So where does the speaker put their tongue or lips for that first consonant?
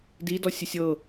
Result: tongue tip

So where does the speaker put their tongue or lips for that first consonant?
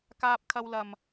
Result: velum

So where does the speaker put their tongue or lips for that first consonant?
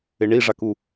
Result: retroflex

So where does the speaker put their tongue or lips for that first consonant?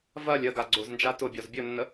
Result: lips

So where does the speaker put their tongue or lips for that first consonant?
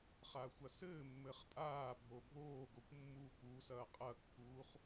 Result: uvula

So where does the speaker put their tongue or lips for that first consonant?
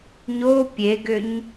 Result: palate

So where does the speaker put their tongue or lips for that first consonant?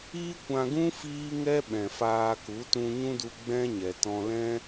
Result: velum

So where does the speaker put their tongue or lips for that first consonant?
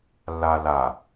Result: tongue tip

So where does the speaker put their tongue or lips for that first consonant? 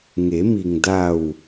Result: velum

